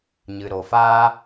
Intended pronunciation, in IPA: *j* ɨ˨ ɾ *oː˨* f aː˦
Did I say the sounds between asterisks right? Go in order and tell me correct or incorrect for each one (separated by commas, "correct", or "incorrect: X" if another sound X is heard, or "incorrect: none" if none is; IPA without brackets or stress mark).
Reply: incorrect: ɲ, incorrect: o˨